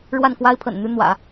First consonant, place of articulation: retroflex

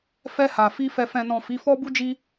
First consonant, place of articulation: labial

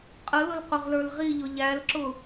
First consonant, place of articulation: uvular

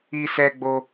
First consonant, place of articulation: alveolar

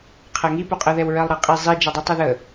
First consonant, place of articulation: uvular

